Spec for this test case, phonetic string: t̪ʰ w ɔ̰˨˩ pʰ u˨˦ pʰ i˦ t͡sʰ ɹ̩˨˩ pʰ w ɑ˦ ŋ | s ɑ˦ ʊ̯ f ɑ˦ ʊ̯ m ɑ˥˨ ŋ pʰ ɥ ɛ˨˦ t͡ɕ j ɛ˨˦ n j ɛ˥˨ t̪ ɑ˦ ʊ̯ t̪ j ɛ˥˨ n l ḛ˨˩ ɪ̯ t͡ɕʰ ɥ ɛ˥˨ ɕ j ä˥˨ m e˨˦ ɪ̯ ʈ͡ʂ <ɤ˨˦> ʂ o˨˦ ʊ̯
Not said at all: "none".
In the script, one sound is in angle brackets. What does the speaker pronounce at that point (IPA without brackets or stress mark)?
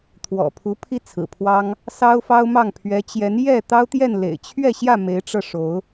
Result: ɤ˧